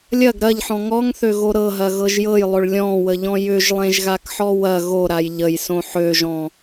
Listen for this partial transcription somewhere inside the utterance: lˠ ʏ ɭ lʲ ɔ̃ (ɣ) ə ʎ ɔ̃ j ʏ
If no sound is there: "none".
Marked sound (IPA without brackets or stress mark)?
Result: w